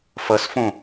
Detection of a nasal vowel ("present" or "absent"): present